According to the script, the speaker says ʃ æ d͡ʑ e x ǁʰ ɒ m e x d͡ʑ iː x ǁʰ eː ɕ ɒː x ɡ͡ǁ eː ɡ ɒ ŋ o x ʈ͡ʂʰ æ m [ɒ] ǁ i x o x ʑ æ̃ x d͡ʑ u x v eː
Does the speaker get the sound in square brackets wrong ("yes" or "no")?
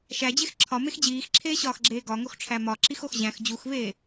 no